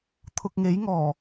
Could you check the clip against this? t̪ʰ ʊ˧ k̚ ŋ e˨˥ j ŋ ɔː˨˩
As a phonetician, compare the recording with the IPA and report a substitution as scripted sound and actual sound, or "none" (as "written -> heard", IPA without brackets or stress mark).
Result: none